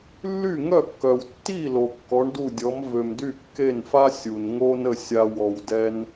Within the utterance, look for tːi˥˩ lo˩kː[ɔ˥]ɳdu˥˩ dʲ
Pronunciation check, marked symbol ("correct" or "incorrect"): incorrect